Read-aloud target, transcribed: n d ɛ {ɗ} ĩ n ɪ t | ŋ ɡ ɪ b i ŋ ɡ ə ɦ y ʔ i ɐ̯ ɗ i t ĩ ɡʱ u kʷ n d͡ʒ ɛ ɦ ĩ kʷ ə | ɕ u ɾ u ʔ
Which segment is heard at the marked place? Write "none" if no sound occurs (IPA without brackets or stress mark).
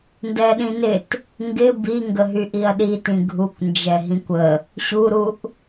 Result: ɗ